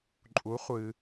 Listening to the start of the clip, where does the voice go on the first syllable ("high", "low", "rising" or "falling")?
rising